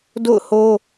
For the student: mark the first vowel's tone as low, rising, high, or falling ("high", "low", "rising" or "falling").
falling